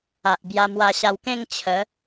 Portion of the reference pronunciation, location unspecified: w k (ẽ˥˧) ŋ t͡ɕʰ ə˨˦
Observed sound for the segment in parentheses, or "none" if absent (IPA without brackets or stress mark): ẽ˥˧